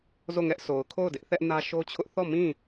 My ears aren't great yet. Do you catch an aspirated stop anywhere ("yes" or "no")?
yes